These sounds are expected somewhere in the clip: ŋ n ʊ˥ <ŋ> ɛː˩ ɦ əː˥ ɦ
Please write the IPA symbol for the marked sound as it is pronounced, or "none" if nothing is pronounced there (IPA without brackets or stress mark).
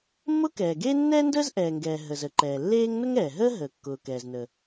ŋ